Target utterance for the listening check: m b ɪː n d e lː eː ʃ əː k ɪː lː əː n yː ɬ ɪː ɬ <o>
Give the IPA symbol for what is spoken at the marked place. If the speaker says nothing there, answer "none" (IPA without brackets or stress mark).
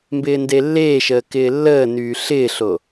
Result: o